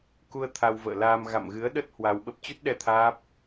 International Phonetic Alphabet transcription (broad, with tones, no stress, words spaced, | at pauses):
ku˧ə̯ t̪ʰa˧wvə̰ː˧˨laː˧m ɣa̰˧˨mɣɨ˨˦ə̯ɗə˦˥t̚ hwa˧wɓə˦˥p̚ t͡ɕu˦˥t̚ɗɛ˧ t̪ʰaː˦˥p̚